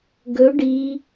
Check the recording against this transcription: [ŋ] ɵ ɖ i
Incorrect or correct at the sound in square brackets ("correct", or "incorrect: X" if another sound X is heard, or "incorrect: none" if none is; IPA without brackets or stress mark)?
incorrect: ɡ